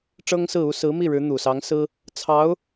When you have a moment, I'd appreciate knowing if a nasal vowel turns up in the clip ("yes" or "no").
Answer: no